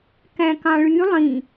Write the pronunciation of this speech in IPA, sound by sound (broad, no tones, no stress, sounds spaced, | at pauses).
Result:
k æ̃ k ɑ̃ ɭ y lˠ ĩ